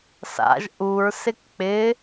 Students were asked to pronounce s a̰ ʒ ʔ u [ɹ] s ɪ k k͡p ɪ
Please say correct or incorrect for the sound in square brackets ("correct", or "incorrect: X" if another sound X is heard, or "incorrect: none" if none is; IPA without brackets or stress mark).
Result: correct